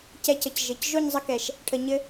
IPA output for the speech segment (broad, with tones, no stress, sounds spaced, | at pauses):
c ɛ˧ c ə˨ c ʒ ɘ˨ c ʒ o˦˨ ɲ zˤ ə˧ k ɛ˨ ʃ | ʈʰ ə˨ ɲ ɘ˧